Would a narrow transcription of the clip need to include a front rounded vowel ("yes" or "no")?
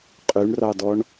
yes